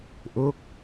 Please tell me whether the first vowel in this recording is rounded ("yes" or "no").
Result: yes